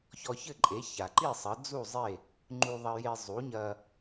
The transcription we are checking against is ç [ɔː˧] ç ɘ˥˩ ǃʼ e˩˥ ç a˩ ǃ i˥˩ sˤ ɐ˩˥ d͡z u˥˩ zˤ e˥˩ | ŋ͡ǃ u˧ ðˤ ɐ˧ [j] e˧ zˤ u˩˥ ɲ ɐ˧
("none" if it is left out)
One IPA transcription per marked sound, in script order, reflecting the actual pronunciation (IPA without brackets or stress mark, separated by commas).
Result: ɔ˧, j